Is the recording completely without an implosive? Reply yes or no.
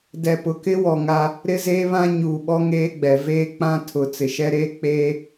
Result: no